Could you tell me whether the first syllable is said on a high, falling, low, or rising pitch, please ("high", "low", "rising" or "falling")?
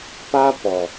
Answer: high